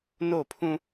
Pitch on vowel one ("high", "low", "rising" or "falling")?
falling